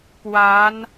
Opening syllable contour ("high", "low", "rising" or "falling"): rising